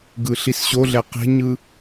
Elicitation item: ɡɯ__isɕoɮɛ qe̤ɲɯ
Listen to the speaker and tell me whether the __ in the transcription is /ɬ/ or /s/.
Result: ɬ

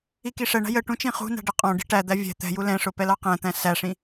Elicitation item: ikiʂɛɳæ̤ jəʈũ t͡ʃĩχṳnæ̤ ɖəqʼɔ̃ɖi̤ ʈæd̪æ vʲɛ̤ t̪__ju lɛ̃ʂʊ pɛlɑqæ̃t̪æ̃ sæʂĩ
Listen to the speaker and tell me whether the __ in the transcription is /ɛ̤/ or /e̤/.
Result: ɛ̤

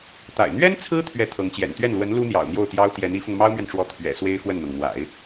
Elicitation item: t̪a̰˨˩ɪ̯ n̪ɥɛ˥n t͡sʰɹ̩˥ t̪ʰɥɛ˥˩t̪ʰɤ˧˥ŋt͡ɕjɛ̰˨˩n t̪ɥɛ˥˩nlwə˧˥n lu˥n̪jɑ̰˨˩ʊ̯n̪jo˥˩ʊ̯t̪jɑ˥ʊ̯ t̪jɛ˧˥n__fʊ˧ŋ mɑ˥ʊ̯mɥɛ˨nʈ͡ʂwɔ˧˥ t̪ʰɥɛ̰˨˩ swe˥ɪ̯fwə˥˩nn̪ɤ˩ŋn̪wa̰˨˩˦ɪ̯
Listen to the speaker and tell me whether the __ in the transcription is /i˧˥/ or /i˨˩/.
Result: i˧˥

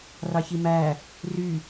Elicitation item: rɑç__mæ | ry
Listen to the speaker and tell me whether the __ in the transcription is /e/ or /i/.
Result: i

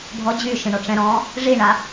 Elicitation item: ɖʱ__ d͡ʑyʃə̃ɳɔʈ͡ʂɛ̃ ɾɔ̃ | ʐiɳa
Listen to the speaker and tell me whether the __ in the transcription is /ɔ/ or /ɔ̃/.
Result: ɔ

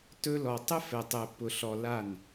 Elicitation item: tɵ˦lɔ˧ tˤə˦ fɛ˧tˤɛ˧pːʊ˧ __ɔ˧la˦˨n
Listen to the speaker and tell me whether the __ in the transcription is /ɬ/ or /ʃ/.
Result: ɬ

